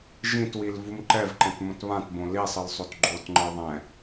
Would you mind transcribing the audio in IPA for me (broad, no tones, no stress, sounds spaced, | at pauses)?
ʒ ĩ t w i l v u m ǃ ɛ v ǃ ɛ̃ t m õ t β ã t b õ l i sˤ ɯ l sˤ o t ɡ͡ǃ o t ŋ͡ǃ ɯ ðˤ ɛ̃